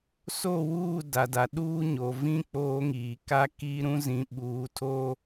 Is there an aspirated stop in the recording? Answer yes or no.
yes